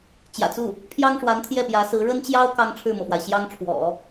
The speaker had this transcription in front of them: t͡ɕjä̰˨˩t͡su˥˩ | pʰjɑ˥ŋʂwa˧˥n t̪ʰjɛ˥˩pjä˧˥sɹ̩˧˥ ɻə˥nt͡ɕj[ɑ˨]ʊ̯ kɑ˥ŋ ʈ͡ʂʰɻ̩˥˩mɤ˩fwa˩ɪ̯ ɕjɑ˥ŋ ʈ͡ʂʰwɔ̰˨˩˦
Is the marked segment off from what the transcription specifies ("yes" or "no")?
yes